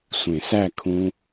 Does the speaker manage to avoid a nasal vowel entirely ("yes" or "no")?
no